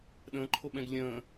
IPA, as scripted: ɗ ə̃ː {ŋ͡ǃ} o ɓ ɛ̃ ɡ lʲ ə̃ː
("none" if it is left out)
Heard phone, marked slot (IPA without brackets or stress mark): ǃʰ